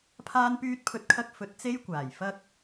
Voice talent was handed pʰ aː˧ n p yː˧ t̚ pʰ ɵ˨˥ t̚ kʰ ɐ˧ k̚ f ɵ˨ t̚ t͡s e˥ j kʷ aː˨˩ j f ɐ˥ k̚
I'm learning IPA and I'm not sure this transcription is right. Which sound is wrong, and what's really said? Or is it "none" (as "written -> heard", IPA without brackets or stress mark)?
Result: none